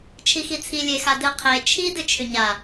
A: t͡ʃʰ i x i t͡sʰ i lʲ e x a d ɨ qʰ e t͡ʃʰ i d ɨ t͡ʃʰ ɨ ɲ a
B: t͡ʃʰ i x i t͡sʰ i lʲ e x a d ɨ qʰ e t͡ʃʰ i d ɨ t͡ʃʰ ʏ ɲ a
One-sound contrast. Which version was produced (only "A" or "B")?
B